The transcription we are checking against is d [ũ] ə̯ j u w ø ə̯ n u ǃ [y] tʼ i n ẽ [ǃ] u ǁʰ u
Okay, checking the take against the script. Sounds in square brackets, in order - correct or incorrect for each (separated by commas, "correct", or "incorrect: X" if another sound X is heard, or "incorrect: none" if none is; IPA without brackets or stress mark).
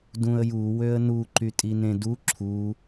correct, correct, incorrect: d